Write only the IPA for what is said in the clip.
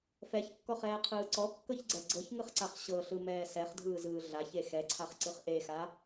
f ɛ ç kː ɔ χ ɛː qʰ ɯː ǀ ɔ kː ɤ ç ɡ͡ǀ ɛ ɡ͡ǀ ɤ ç ŋ ɯ χ ǀ a χ ɕ ɤ ɬ ɯ m ɛː s ɛ χ dʱ ɯː z ɯː ɮ a ç e x ɛ ǀʰ a χ ǀ ɯ χ ʔ e x a

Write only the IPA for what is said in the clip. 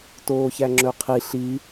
t oː ç æ ŋ͡ǁ ɵ qʰ i ɬ i

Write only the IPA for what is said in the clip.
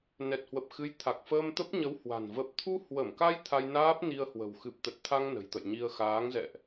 n ɛ˨˩ t̚ h w ə˨˩ p̚ x ɨ˨˦ j t̪ʰ a˨˩ k̚ f əː˧ m t̪ ə˦˥ p̚ ɲ ə˨˦ w h w a̤˨˩ n v ə˨˩ p̚ t̪ʰ u˧ h w ə˧˩ m k a˧ j t̪ʰ a˧ j n aː˦˥ p̚ n i˧ ə̯ h w ə̤˨˩ w x ɨ˨˩ p̚ t̪ ə˨˩ t̚ t̪ʰ a˧ ŋ n ə̤˨˩ j t̪ ə̰˧˨ j ɲ i˧ ə̯ x aː˨˦ ŋ z ɛ̰˧˨ ʔ

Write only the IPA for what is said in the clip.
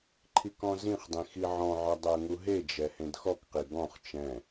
ǃʰ i k ɔ̃ z ĩ χ dˤ ĩ x i ʕ ɔ̃ ʕ ɒ dˤ ɜ ŋ u ɦ e d͡ʒ ɛ h ẽ d x ɔ k q i ɡ ɔ̃ χ t͡ʃ ɛ̃

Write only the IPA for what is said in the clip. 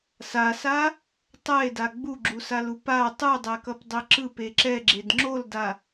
s a s a | tˤ ɛ e̯ d a ɡ͡b u ɡ͡ǁ u s a l u p a tˤ ɯ dˤ ɛ k ʌ p dˤ e ǁ ɯ p e ǁ ɛ ɡ͡ǁ e d ŋ͡ǁ o l d a

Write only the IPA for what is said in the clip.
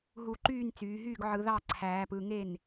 ɦ u˧˩˧ ǃ yː˥˩ n t͡s yː˩˧ ɦ yː˥˩ ɡ ʕ ɯ˧˩˧ ð ɑ˥˩ ǀʰ æː˩˧ p ɯ˩˧ ŋ e˥˩ n

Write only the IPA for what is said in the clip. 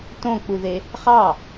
t õ k͡p u ð e | χ ɑ

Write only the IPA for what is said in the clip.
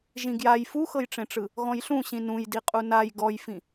ʒ ĩ ɡ j a j f u x ɤ j ʈ͡ʂ ẽ ʈ͡ʂ ɯ | ɣ ɔ̃ j ɬ ũ ɕ ĩ n ũ j d i qʼ u n a j ɡ ɔ j f ĩ

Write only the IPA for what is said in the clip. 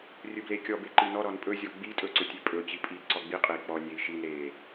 rʲ ɵ b l e kʲ ɔ b e ǃ i n ɔ ɾ ɔ n pʼ ɵ zʲ ɔ ɡ͡b i tʼ ɵ ǀ ɵ tʲ e pʼ ɵ t͡ɕ i pʼ i ǀ ɔ ɡ͡b i qʼ e i̯ k͡p ɔ nʲ e i̯ ʃ i n ɾ e

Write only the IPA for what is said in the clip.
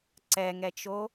ǀ ɛ ŋ ɛ t͡ʃ o

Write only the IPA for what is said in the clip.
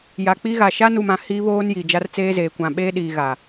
j a˨ k͡p i˦ ɣ a˨ ʃ a˦ n u˨ m ã˨ h iː˦ β oː˦ n j i˨ d͡ʒ a˦ r t͡s eː˦ z eː˨ kʷ ã˨ ɓ eː˦ ɗ iː˨ ɣ a˨

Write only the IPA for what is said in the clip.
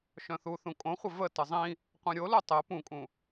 ʃ œ̃ θ u θ ũ kʼ õ χʷ ə v ə t ə zˤ ĩ | qʷ œ̃ ɾʲ o l u tˤ ɛ p ũ kʼ ũ

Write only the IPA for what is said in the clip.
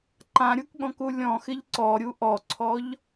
ǃ ã ɾʲ u k ɠ ɔ̃ k u lʲ ɔ̃ x ɪ ʎ ǀ ɔ ɾʲ u ʔ ɔ ǀʰ ɔ ʎ

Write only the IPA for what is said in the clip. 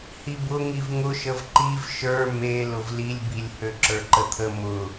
h i b ʊ ŋ i v ŋ ʊ ʃ ə v ǃ i v ʃ ə˞ m e l ʊ v l i lʲ b i lʲ h ø ǁ ə˞ ǃ ə t̪ʰ ə m ʊ

